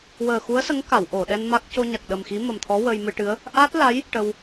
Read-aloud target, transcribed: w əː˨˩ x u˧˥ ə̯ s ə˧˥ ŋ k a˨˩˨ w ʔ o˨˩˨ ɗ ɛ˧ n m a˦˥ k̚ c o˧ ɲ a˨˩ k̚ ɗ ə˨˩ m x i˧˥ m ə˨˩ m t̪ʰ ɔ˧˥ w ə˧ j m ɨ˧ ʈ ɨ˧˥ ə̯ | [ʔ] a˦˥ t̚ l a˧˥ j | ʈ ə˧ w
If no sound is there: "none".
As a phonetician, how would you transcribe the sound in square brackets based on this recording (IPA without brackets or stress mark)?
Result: ʔ